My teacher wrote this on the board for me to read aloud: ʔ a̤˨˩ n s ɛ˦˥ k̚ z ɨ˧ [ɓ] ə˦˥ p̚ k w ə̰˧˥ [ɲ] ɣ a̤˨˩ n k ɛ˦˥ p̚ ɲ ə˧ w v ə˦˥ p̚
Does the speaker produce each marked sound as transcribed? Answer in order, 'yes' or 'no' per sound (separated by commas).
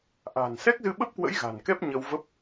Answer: yes, no